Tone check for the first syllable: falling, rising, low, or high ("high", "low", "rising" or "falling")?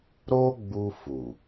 high